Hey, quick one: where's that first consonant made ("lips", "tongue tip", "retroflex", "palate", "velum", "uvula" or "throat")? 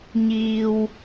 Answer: palate